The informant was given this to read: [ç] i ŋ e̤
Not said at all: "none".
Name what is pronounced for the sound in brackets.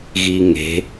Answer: ɣ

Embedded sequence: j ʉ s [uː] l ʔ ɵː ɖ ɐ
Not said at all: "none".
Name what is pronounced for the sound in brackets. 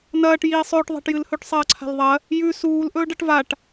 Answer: uː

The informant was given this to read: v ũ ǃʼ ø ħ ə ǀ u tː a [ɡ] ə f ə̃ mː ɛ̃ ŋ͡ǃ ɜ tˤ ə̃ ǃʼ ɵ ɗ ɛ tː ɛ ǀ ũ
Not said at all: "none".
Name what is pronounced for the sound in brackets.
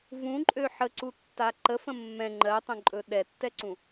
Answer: ǃ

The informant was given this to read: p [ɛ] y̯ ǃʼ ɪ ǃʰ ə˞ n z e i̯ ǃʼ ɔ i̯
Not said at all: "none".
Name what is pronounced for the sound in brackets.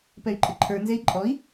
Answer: ɛ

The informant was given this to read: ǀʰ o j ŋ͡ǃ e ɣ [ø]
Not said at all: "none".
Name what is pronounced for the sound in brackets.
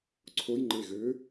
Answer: ø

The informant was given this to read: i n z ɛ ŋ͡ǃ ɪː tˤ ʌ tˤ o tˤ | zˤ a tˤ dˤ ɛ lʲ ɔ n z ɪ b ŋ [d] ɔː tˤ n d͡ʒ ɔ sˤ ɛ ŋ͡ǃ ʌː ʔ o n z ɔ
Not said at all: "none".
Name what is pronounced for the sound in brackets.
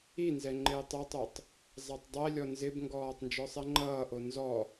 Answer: ɡ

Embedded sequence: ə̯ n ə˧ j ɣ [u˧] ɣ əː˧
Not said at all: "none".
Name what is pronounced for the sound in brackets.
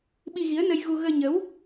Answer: u˧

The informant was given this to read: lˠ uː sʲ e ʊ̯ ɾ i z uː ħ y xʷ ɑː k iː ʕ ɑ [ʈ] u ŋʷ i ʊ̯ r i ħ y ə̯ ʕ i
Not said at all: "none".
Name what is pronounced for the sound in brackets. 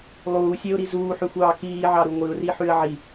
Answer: ɾ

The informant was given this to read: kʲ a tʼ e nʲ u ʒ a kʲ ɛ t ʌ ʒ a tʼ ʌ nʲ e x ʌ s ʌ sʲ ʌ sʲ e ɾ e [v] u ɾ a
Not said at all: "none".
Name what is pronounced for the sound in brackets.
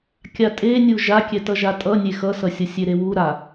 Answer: w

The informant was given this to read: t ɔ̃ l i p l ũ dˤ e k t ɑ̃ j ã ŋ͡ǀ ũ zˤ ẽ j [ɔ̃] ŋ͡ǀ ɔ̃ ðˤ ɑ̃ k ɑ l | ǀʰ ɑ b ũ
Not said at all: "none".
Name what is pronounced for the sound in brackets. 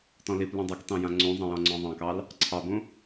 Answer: ɔ̃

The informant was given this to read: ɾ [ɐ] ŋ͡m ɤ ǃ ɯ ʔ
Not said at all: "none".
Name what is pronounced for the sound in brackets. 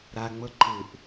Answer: a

